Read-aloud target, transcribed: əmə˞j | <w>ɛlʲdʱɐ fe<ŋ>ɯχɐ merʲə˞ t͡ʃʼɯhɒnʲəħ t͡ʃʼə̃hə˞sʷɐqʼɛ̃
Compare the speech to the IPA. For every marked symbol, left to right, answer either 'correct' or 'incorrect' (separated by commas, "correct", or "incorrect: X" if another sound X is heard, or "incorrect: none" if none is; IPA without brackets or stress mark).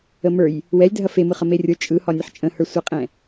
correct, incorrect: m